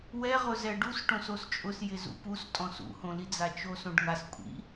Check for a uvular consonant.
present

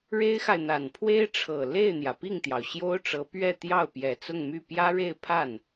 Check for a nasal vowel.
absent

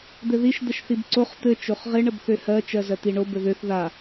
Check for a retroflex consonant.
present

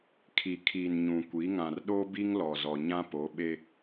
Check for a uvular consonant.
absent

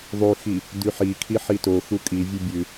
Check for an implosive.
absent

